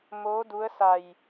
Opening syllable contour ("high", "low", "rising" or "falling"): rising